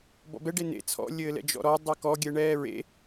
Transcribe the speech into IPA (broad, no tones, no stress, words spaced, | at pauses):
bɔ̰bɛɖe nḛ t͡sʰɔ̰ lʲɘːlɛ̰d͡ʒɔ̰ɾɔ dˤɘkɔɡʲɛɳɛː ɹḛ